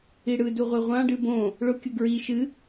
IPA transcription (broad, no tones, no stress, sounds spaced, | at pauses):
i ɽ ɯ d u ʁʷ ɨ ʁʷ ã ɖ ɨ b õ | ɭ ʊ kʲ ʊ ɡ ɹ i ʃ ɨ